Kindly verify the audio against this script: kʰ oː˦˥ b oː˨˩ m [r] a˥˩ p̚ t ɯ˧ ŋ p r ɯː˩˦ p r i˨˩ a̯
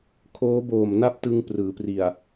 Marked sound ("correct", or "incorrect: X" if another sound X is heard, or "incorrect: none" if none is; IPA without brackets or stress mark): incorrect: n